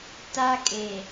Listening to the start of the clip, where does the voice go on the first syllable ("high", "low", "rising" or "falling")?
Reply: high